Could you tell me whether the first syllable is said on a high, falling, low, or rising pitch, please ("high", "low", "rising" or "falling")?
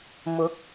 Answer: rising